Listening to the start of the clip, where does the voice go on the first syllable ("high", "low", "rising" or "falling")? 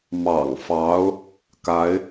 low